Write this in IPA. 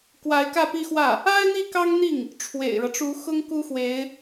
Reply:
k w a˧˥ ɪ̯ k ä˥˧ p i˥˧ x w ä˥˩ | a˥ ɪ̯ n̪ i˥˩ k ɑ˥ ŋ n̪ i˥˩ ŋ | ʈ͡ʂʰ w ḛ˨˩ ɪ̯ ɻ ɤ˦ ʈ͡ʂ u˧˥ x ʊ˥ ŋ k u˥ x w e˧˥ ɪ̯

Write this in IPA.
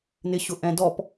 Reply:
n ɪ ɕ ʊ ʔ ɛ̃ d ɔ p

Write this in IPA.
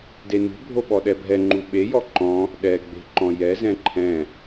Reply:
d e n ṳ bʱ o ɓ ɔ ɗ ɛ bʱ ɛ ŋ͡ǃ u ɓ e j ɔ ǃ ɔ̃ | ɗ ɛ ɡ͡b e̤ ǃ ɔ̃ j ɛ z ɛ̃ ǃʰ ɛ̃

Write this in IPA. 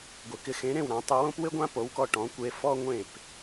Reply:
ɡʷ ɪ˩ k ɪ˩˥ x ẽ˩˥ ɾ ẽ˥˩ w ɾ ã˩˥ tˤ ɪ˧ w õ˥ p w ɪ˥ ɡʷ ã˥ p o˩˥ w k ɔ˧ ʈ ɔ̃˩˥ kʷ e˧ f ɔ˥ ŋʷ ẽ˥˩ p

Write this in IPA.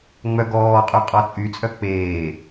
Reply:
ŋ͡m œ ɡ ɔː qʼ y qʼ ɔ t͡sʼ y t͡sʼ œ k͡p eː

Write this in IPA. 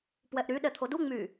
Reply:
p w ɛ ʔ ɾ y ɗ ɛ t̪ʰ o d u ŋ͡m y

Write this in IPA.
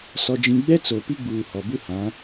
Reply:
s ɔ˦ d͡ʒ ĩ˦ ɡ͡b ɛ˦ t͡s o˨ p i˦ ɡ͡b uː˨ h ɔ˨ b u˦ h ã˨˦

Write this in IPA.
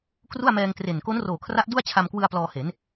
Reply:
k r u˥˩ a̯ m ɛː˧ ŋ t r e˨˩ n k o˦˥ n r oː˨˩ kʰ r a˦˥ ʔ d u˥˩ a̯ t͡ɕʰ a˧ m k w ɯ˧ a̯ p l ɔː˧ h e˩˦ n

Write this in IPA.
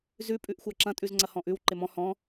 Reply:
z ʉ pʼ ʉ ʔ xʷ a ǁ ɐ̃ tʼ ʉ z ŋ͡ǀ ɐ h ɔ̃ ʔ ʉ w ǃ ɪ m ɔ̃ h ɔ̃

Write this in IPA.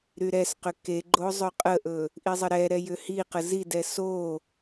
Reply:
ɾ y ɾ ɛ s q ʏ k e ɡ͡ǃ o zˤ ɵ qʼ ə ʔ ɵ | ʔ i zˤ ə ɾ ɛ ɾ ɛ j ʏ h i q ə z i d ɛ s o

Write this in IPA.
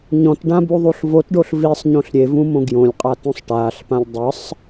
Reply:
ɲ ɔ̃ t ɖ ã b u ðˤ u ɬ v o t ɖ o ɬ v i sˤ ɲ õ ɬ ɾʲ e v ũ m õ ɡ j õ lʲ qʼ a t ũ sˤ ʈ aː ɬ p ã lʲ dˤ ɯ sˤ

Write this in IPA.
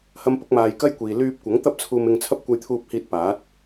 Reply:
h ɐ˥ m p ʊ˥ k̚ m aː˧ j k ɐ˥ j kʷ iː˨ l yː˧ p̚ kʷ ɐ˨˥ ŋ t̪ ɐ˥ p̚ t͡sʰ uː˧ m ɪ˧ ŋ t͡sʰ ɐ˥ p̚ kʷ ɐ˧ j t̪ʰ uː˧ p̚ h iː˧ t̚ p aː˨˥ t̚

